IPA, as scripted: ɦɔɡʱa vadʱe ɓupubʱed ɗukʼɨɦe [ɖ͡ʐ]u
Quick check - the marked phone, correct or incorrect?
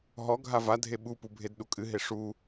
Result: incorrect